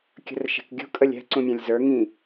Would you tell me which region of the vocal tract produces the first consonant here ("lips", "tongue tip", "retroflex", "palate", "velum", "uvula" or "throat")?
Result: velum